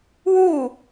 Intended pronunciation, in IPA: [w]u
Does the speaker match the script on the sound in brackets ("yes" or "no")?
yes